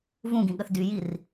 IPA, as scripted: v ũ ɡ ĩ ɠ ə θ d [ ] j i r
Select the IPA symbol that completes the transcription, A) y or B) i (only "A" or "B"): A